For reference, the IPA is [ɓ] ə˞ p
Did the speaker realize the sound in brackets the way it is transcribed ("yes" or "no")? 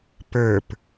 no